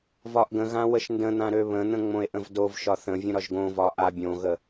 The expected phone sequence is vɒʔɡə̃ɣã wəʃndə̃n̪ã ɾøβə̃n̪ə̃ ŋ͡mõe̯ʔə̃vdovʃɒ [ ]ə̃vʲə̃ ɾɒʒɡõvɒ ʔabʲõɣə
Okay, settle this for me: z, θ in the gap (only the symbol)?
θ